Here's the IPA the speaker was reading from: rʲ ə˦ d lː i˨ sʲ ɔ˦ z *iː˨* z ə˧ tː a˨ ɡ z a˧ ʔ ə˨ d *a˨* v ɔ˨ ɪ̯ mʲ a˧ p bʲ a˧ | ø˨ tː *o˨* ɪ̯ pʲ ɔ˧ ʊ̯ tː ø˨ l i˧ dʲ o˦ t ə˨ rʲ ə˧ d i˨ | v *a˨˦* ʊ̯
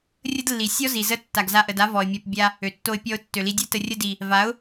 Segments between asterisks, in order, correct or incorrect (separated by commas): incorrect, incorrect, incorrect, correct